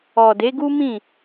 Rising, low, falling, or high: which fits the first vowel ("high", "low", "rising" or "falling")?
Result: low